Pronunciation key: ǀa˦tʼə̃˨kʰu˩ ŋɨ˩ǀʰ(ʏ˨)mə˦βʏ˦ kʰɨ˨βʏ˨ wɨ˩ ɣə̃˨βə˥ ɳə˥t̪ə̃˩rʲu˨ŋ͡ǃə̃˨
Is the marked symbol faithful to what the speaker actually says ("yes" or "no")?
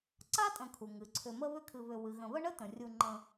yes